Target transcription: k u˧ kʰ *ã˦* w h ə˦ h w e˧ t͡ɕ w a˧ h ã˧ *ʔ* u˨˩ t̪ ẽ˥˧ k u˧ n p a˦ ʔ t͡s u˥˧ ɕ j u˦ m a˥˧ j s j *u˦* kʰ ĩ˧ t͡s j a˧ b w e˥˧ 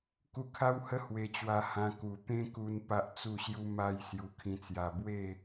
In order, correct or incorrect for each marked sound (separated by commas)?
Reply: incorrect, incorrect, incorrect